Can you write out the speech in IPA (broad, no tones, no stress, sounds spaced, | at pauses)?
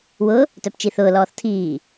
w ʊ | t œ p t͡ʃ i θ ʊː l ɔː θ tʰ iː